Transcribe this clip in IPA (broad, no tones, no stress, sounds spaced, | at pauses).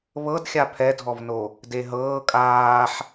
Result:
β ɤ d xʲ a pʰ ɛ dʱ ɔ v n o | d e ɦ ɤː kʼ aː ħ